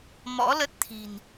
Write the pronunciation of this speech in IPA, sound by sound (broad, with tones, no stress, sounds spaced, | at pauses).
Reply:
m ɔ̰˧˥ l ə˦˥ t̚ t̪ʰ i̤˨˩ n